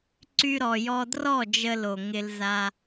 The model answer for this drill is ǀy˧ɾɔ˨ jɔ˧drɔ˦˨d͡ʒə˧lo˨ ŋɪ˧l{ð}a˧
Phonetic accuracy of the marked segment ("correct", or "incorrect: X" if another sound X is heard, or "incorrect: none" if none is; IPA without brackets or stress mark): incorrect: z